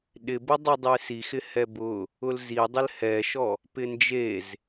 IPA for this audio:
ɗ ɪ b ʊ dˤ i dˤ e s i x ɪ h ɛ b ʊ | ʊ l z i dˤ ɪ l h ɛ ʃ ɔ | p ɪ n d͡ʒ e z

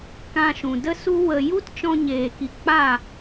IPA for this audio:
k ã˧ ʃ ũ˨ d ə˦ s u˦ w ə˧ j u˦ t t͡ʃ ɔ̃˧ ɲ eː˨ k i˨ k͡p a˦˨

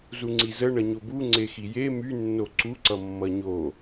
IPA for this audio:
z u ŋ͡ǀ i z ə ɳ ʌ ɲ o b u ŋ͡ǀ e x i j e m y nː o ǀ u ǀ ʌ mː ʌ ɲ o

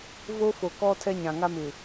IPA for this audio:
v o˦ f o˨ k ɔ˦ tʰ ɛ˦ ɲ ã˨ ŋ a˦ m ɪ˨

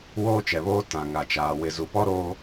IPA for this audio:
w oː˦ t͡ʃ ɛ˨ β oː˦ t ã˨ ŋ a˨ t͡ʃ aː˨ w ɪ˨ z u˨ p ɔ˦ ɾ oː˦

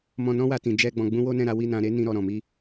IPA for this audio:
m ɔ̃˧ n ɔ̃˦ w a˧ t ĩ˨ d͡ʒ ɛ˧ ɡ͡b ɔ̃˧ ɡ͡b ũ˦ w o˦ n ɛ̃˦˨ ɾ a˨˦ w i˦˨ n ã˧ ɾ e˦ n ĩ˦ ɾ ɔ˧ ɾ ɔ̃˨ m i˧

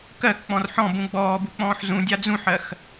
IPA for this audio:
k ɜ k k͡p ɔ̃ r ħ ɔ̃ b ũ ɡ͡b ɔː b u k͡p ɔ̃ː ħ z ũ dʲ a d͡z ũ ħ ɜ x

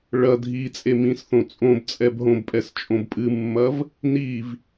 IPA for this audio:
ɭ ɐ dʱ i t͡sʼ e m ĩ s θ õ t͡sʼ õ b t͡sʼ ɛ b ɦ õ b pʼ ɛ s t͡ʃʼ õ b pʼ ɨ mː ɐ v | n i v

